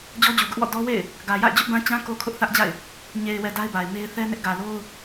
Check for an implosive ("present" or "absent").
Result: absent